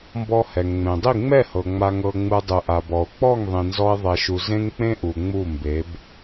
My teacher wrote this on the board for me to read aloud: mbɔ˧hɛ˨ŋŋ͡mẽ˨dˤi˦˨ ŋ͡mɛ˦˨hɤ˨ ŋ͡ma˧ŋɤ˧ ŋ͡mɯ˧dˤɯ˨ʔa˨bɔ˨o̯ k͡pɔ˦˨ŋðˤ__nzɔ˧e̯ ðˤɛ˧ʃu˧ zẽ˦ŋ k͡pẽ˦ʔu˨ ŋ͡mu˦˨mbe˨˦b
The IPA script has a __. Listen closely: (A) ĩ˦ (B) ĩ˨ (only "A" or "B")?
B